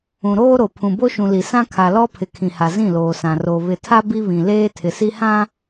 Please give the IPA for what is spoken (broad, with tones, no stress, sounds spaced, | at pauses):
ũ˨ ɾ oː˦ ɾ o˨ pʰ ũ˨ b o˦ ʃ ũ˨ l i˨ s ã˦ kʰ a˨ l ɔ˦ pʰ ɪ˨ kʰ ĩ˨ h a˨ z ĩ˦˨ l oː˨ s ã˨ r o˨ β ɪ˨ tʰ a˦ b i˦ β ĩ˨ l eː˦ tʰ ɪ˨ s i˦ h ã˦